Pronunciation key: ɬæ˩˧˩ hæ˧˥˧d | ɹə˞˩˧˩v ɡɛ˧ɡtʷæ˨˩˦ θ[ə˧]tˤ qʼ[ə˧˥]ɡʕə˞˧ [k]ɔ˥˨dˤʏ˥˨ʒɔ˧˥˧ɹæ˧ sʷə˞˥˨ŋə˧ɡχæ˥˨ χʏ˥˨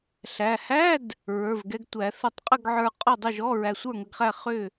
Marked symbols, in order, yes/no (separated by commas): no, no, no